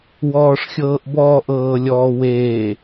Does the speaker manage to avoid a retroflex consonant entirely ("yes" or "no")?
no